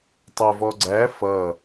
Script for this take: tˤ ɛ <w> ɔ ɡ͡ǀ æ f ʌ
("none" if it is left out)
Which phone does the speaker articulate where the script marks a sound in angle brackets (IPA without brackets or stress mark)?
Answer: v